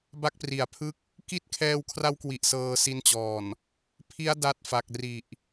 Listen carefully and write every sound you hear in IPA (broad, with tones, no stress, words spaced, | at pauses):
ba˦˥k̚pri˩˦a̯pʰɯ˥˩k̚ | ki˦˥t̚kʰɛː˧wkʰra˦˥wkwi˨˩ʔ sɤː˧si˦˥nt͡ɕɔː˨˩n | pʰi˦˥a̯ da˦˥t̚fa˨˩k̚ri˨˩ʔ